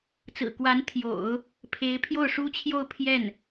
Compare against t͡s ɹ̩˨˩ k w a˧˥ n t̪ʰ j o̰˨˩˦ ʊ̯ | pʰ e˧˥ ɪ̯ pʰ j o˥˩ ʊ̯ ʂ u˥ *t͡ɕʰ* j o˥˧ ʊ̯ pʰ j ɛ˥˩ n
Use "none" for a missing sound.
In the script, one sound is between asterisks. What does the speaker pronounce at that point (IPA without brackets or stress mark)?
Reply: t͡ɕʰ